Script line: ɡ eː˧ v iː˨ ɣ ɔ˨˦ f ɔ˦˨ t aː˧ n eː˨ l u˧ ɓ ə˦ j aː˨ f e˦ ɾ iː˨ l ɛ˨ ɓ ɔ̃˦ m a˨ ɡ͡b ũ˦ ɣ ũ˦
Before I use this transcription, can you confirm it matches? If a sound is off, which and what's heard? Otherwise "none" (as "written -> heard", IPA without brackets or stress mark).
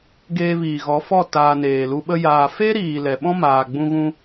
a˨ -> aː˨